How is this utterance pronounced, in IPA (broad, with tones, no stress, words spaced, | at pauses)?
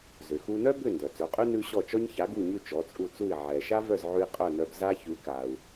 zʏ˩xu˧nœ˥bʏ˥˩ ndœ˩t͡sœ˩˥qʼʉ˥ nʉ˥ ɕɔ˥˩ t͡ʃɔ˥ɲça˩˥ ɡu˥˩ɲʉ˥˩ t͡ʃɔ˩˥t͡sʼu˥˩t͡su˥˩i̯ ʕɛ˩ ʃa˥vœ˥˩zʕʉ˧i̯ qʼœ˥˩nœ˧b za˥çʉ˩˥ka˩u̯